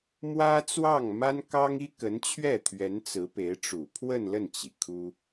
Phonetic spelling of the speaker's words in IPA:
mwä˥t͡swɑ˥˩ŋ ma˥nkɑ˥ŋ i˥kə˧˥nt͡ɕʰɥɛ˥˩t̪ʰɥɛ˧˥n t͡sɹ̩˧˥pe˧˥ɪ̯ʈ͡ʂu˨˩ pʰwə˥˧nlə˥˩nt͡ɕi˩ kʰu˥

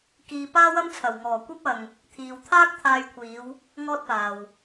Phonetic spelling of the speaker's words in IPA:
kiː˧ paː˥wɐ˥mt͡sʰɐ˨˩wŋɔː˨˩ kʷɐ˥p̚ɐ˨ŋ | t̪ʰiː˨wt̪ʰaː˥k̚ t̪ʰaː˧jkʷʰiː˨˧w | ŋɔː˥t̚paː˨w

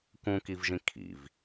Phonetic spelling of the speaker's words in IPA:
kũkivʒĩ kʰḭv

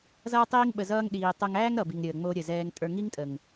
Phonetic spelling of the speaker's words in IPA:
zʌː˦tˤiː˦ŋ ɓə˧zʌː˦ŋɗiː˧ tˤo˧ŋæː˦ŋɾʌ˨bi˨ŋ ɾʲəː˨ŋ͡mo˧ ɾʲə˨zɛː˧ŋ tʼə˞˧ŋi˦ŋtʼə˨ŋ

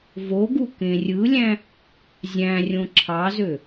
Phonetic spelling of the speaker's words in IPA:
voɡu kẽrʲɯlʲæ̃ | zʲæ̃rʲõ ǁʰɑzø

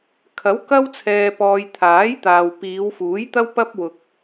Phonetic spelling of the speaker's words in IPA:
kʰɐ˨˥wkɐ˥w t͡sʰɛː˧pɔː˧j t̪ʰaː˨˥jt̪aː˨w piː˨˧wfuː˨˥j t̪ɐ˥wpɐ˥p̚ wʊ˧k̚

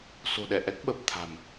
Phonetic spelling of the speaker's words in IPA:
so̤˨˩ɗɛ˧˩ʔɛ˦˥k̚ ɓə˨˩p̚ t̪ʰa̤˨˩m

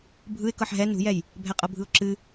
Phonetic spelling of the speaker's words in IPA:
bʱɯɪ̯ kɤħɦɛ nṳjɛj | bʱɛqʼɤbʱɯʊ̯ǁɨ

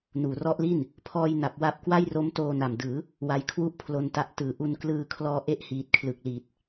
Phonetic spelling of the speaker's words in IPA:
nuː˩˦rɔ˦˥ʔli˥˩n | pʰɔː˧jna˨˩p̚ wa˦˥p̚kwa˥˩jro˦˥m toː˧na˨˩mdɯː˩˦ | wa˦˥jkʰwu˥˩ʔpʰlo˧nta˦˥ʔ tɯː˨˩ ʔu˧nklɯː˧kʰlɔː˧ ʔe˥˩ʔhiː˨˩t̚kʰlɯ˨˩k̚liː˨˩t̚

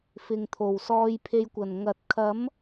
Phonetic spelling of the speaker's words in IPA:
fɪ˨ŋt̪ʰo˨˩w sɔː˧jpʰe˧jkʷɐ˨˩n ŋɐ˨t̚kʰɐ˨˥m

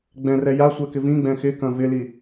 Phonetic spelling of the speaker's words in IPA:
ɡ͡bɛ̃rɛ jasʷɛkɪ vĩɡ͡bɛ̃ xɪkɐ̃ vɪli

